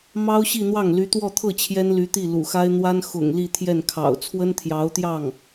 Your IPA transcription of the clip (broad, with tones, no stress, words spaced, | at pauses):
mɑ˥ʊ̯ɕi˥˧n̪wɑ˥˩ŋly˧˥ t̪wɔ˥˧t̪ʰɤ˥˩ t͡ɕʰjɛ˥nly˧˥t̪i˥˩ lṵ˨˩xa˥ɪ̯ n̪wa˥n xʊ̰˨˩ŋ li˥˧t̪ʰjɛ˥˩nkʰɑ̰˨˩ʊ̯ t͡sʰwə˥nt̪ʰjɑ˧˥ʊ̯t̪jɑ˥˩ŋ